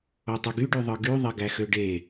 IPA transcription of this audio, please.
otˤɯɡyɖy ðˤɯɡy ðˤeɡæxøɖe

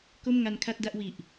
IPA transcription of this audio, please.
ko˥˩mŋa˧nkʰa˥˩t̚ da˥˩ʔwi˨˩ʔ

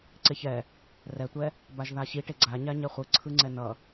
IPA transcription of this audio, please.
ǀeçɛ | rɛtʷɛ | baʒðaɕiʈe ɡ͡ǀa ɲaɲɛχʷɯ ǀʰɯŋ͡ǀɛnʌ

